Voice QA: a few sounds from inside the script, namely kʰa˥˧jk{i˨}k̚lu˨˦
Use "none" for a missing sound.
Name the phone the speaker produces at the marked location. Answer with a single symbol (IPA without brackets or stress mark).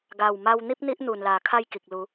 i˨